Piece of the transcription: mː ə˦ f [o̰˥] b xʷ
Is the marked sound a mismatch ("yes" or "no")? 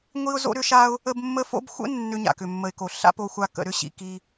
no